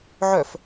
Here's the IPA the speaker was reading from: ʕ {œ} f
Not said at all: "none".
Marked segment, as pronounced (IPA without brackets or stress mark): œ